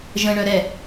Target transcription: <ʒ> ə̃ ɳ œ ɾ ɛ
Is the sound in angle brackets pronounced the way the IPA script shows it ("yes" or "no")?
yes